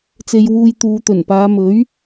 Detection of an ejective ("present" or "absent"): absent